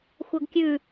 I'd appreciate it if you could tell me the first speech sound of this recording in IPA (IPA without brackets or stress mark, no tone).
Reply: xʷ